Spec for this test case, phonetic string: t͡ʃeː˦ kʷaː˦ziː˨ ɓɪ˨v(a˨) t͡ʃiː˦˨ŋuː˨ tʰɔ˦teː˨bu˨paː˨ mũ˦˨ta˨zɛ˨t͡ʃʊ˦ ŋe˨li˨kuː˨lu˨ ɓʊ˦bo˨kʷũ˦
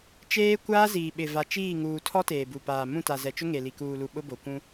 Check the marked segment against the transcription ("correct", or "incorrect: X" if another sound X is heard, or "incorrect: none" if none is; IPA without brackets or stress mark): correct